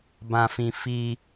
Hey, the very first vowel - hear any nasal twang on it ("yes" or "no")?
yes